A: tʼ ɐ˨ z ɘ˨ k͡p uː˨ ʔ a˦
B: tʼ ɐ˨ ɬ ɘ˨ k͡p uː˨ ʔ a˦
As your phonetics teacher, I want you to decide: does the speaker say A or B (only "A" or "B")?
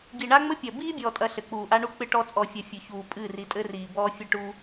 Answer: B